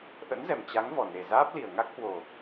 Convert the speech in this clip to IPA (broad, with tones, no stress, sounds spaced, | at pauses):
ʔ ə̰˧˥ n z ɛ˨˩ m t͡ɕ a˨˦ ŋ v ɔ˨˩ n e˨˩ z aː˦˥ p̚ l i˨˩ ə̯ ŋ a˦˥ k̚ h w o˨˩